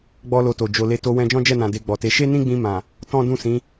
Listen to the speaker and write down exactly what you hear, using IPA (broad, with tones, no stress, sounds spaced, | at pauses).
ɡ͡b ɔ˦ l o˧ t o˨ d͡ʒ o˨ l e˧ t o˧ w ɛ̃˧ d͡ʒ ɔ̃˦ d͡ʒ ɛ˦˨ n ã˨ d e˧ ɡ͡b ɔ˨ t e˨˦ ʃ e˦ n ĩ˦ ɡ͡b ĩ˧ m ã˨ | t ɔ̃˦ d ũ˦˨ s ĩ˨˦